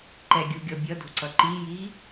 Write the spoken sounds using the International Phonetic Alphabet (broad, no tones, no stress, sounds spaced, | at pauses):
ǃ ɛ ɡʲ u ɡʲ ɔ bʲ ʌ d o̤ ǀ ʌ ǃ i j i